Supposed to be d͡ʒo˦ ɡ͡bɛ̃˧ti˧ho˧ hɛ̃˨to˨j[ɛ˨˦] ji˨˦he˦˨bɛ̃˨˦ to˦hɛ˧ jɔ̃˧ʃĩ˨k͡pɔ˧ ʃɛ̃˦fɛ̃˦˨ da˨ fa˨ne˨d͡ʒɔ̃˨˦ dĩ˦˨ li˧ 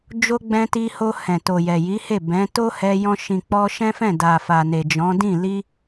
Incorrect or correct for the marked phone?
incorrect: ɛ˨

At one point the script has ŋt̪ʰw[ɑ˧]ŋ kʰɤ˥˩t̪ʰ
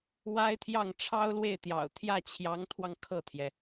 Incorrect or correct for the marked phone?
correct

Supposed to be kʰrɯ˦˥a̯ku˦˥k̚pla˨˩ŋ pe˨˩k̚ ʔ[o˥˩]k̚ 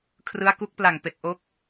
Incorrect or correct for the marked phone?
incorrect: o˦˥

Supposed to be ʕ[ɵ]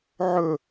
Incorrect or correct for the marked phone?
correct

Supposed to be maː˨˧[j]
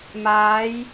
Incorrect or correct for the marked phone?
correct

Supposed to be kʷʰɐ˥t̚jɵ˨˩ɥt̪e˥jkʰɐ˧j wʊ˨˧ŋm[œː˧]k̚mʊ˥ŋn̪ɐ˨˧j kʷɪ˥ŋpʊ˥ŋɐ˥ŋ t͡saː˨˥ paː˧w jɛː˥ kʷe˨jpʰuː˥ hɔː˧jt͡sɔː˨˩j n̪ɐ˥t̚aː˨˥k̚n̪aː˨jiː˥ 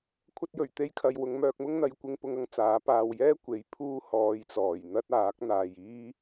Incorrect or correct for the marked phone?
correct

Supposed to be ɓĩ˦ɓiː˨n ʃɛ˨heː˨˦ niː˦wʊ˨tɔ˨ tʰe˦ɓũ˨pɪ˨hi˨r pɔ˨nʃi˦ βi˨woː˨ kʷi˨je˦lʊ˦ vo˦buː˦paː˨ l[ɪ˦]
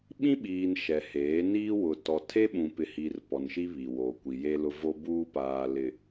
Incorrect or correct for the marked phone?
incorrect: ɪ˨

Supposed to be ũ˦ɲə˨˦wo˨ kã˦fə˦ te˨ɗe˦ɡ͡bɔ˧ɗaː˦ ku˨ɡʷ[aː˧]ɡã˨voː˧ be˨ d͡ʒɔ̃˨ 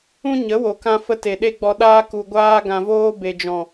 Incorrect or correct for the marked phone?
correct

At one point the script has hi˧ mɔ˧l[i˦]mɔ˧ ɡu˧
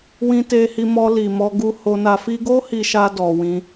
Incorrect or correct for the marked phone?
incorrect: i˨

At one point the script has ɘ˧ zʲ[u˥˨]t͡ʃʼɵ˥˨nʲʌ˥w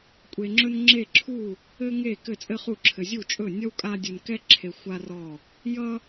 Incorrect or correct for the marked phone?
correct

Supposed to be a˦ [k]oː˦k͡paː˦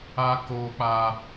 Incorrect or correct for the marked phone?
correct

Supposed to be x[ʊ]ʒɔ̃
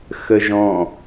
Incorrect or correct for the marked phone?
incorrect: ə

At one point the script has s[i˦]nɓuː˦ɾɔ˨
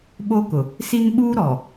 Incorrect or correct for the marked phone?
correct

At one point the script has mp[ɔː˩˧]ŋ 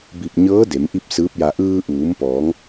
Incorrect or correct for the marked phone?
correct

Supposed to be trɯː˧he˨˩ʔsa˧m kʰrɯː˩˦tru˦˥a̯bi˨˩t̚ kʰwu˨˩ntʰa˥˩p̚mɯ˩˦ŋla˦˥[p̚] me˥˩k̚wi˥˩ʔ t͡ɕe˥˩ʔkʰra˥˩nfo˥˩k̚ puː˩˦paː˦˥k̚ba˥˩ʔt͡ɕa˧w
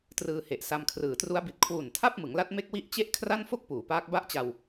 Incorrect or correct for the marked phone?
incorrect: t̚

